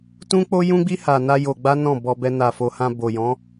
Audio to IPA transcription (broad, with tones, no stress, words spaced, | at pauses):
tũ˦k͡po˦jũ˦ɡ͡bi˦ ha˧na˦jo˧ɡ͡ba˦ nɔ̃˦˨bɔ˧bɛ˧ na˨fo˨hã˧ bo˨jɔ̃˨˦